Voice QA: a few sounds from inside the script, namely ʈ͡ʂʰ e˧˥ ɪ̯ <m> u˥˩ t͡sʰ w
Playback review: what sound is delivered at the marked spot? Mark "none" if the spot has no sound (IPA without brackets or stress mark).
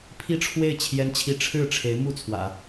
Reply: m